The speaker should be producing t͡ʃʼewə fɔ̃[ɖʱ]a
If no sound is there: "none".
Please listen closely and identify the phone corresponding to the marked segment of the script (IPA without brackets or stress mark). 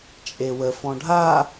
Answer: ɖʱ